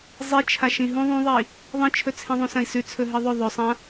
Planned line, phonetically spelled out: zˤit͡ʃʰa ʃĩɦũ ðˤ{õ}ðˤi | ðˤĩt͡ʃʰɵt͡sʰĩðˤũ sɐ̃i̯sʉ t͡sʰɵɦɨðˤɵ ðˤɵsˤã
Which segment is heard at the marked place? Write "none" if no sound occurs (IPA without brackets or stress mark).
ũ